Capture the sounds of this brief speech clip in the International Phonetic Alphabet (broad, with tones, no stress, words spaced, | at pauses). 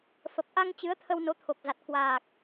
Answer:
fə˨˩p̚ʔa˧ŋ t͡ɕɨ˨˦ə̯t̪ʰə˧w no˨˦t̪ʰo˨˩k̚za˨˩t̚ kwaː˨˩k̚